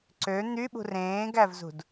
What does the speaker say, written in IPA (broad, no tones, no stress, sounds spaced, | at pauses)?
ǀ ø n̪ y ɓ ṳ r ẽː ɡ æ v z ṳ d